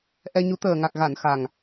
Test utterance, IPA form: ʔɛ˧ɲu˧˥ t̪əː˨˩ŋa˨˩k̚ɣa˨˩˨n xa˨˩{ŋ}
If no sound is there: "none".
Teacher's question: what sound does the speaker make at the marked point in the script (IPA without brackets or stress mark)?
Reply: ŋ